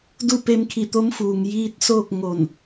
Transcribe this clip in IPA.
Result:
du˥˨pe˧mkʰi˧˩ t̪o˧˥mfuː˩ŋ jiː˧t̚ soː˥˨k̚ ŋo˧˩n

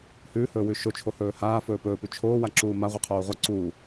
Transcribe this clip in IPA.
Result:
hʉːhɵː wʉʃot͡ʃʰo hɵːhaː fɵːpɵːpʉ t͡ʃʰoː waǁuːma ʁʷiqʰoːʁʷɐ ǀuː

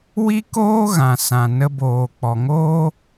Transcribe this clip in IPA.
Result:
wi˦koː˦ɣã˨sã˨ nə˧boː˨ k͡pɔ˨ŋoː˦

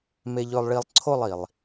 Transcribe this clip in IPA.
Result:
me˧ʎɵ˧lˠɭi˧lˠ ǀʰo˥˧lˠ i˩lˠ

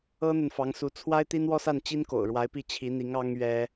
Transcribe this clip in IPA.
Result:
ɤ˥n̪ə˨nfɑ˧˥ŋsu˧˥ t͡sʰwa˥ɪ̯t̪i˥nwɔ˥sa˥˩n t͡ɕi˥nko̰˨˩ʊ̯ɻwa˧˥ɪ̯pi˥˩ t͡ɕʰi˧˥n̪i˧˥ŋ ɑ˥ŋɥɛ˥

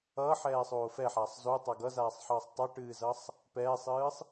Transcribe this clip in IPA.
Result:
ʌːħɛːsˤoː fɛħaːsˤ zotˤa ɡʌzaːsˤħʌːsˤ tˤʌʈɨːzʌsˤ | pɛːsˤɨːsˤ

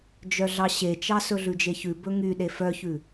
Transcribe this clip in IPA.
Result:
d͡ʒœɮɑɕet͡ʃɑ sɵɮʉd͡ʒeçʉ bɵŋy ɗefœçʉ

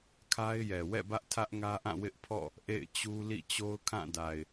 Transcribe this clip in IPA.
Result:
kʰa˦ɪ̯jɛ˨ wɛ̰˦˨bä˦ʔ tʰä˦ʔŋä˦ʔã˦˨ wɪ˦ʔpʰɔ̰˦˨ | ʔḛ˦˨ɪ̯t͡ɕu˦ lḭ˦˨t͡ɕo˦ʊ̯kʰã˦˨da˨ɪ̯

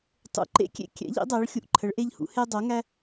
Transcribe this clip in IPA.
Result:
tˤṵ˨˦ǃḛ˦kʲḛ˦ kʲɛ̰˨˦ʎḭ˨˦ dˤæ˨˦ɭxʲu˨˦ʔǃʰə˨˦ɭʔe˦ʎ hṵ˨˦he˦dˤo˨˦ ŋæ˦

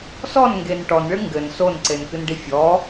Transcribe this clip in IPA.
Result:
sɔnŋɡen ʈɔnɭɨ ŋɡɘn sonǀenkɨnɖi fʲɔ

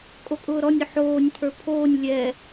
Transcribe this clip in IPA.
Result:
kʼokʼʊːɾɔnʲʊ ħoːnʲpʰə˞ pʰoːnʲ lʲɛ

